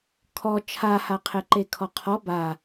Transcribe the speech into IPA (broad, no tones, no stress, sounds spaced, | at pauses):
kʰ ɔ t͡ʃʰ a h a qʰ e ǃ e kʰ ɔ qʰ ɔ b a